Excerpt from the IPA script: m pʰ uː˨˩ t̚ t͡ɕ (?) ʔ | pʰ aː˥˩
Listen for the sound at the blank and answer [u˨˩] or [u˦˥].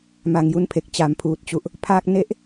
u˨˩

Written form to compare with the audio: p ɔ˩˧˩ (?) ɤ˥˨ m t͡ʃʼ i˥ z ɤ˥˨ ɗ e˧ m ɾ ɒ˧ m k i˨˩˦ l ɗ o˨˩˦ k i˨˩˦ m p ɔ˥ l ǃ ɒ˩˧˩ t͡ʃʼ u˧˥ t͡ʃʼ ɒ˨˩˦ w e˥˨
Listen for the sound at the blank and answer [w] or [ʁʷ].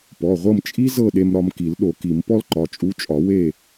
ʁʷ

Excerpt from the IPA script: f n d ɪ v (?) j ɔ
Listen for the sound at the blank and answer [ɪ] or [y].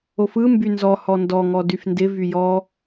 y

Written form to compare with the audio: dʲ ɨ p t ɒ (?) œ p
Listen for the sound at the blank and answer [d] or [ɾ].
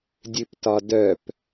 d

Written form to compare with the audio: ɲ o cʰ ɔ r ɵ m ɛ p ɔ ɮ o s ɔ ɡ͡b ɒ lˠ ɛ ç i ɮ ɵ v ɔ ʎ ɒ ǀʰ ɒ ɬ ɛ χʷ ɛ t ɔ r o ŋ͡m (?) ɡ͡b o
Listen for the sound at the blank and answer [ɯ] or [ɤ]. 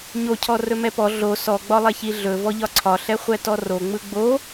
ɯ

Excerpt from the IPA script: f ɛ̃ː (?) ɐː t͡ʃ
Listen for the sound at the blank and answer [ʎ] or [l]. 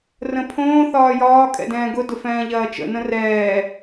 ʎ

